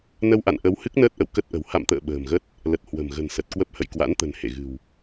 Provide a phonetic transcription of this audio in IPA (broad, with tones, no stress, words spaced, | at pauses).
nə˧wʔa̰˧˨nʔə˨˦w hɨ˦˥k̚nəː˦˥t̚ʔə̰˧˨w kə˦˥t̚ʔə̤˨˩w ha̰˧˨mt̪ə̰ː˧˨ ɓə̤ː˨˩mɣə˦˥t̚ | lə˨˩t̚ hwə̤˨˩mɣə̤˨˩n sə˨˩t̚kwə˦˥p̚ hə̰˧˨jkwa̰˧˥nt̪ə̤˨˩n hḛ˧˨ɣɨ̤˨˩w